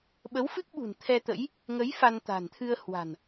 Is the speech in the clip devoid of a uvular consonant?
yes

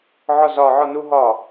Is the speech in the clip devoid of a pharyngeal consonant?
no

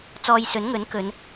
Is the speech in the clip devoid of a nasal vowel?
yes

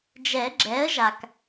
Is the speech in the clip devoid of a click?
no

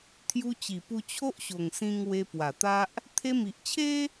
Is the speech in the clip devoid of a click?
yes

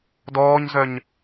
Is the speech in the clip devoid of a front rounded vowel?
no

